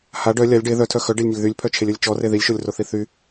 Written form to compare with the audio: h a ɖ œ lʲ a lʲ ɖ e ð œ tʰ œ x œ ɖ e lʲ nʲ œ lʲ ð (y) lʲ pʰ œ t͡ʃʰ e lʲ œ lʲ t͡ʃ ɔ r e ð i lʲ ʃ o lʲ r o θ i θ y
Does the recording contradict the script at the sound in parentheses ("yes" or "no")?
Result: no